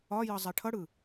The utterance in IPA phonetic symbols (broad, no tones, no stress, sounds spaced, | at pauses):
ɒ j ʌ zˤ ɛ ʈʰ ʌ ɽ ɯ